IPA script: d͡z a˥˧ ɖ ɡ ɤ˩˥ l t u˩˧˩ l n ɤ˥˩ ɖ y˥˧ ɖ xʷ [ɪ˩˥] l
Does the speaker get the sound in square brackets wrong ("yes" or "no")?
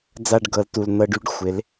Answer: no